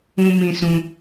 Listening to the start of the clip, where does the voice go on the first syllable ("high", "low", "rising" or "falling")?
high